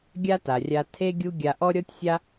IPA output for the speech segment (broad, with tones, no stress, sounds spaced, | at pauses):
ɡʲ a˥ t a˩ rʲ a˧ tʰ e˥ ɡʲ u˥ ɡʲ a˧ ʔ ɔ˥ ɾʲ ɔ˥ tʲ sʲ a˥